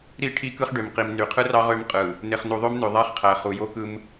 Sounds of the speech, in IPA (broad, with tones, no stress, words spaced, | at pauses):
ɾi˦˨ ʈʰi˦kɯ˦χɖø˨mqi˨m ny˨qʰɯ˦rɑ˦ ʁø˦mqʼɯ˨ | ne˨χnu˨ðˤø˦mnø˨ ðˤæ˦χqʰæ˨ χu˨jo˦kɯ˦m